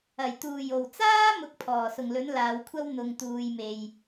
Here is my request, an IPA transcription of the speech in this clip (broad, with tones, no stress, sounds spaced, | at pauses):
ɐ˨˩ j t̪ uː˨˩ j o˨˩ w t͡s aː˥ m ʊ˧ k̚ pʰ ɔː˨˩ s ʊ˨˩ ŋ l ɵ˨˥ n l aː˨˧ w kʷʰ ɐ˥ w n̪ ʊ˨ ŋ t̪ uː˨ j m e˨ j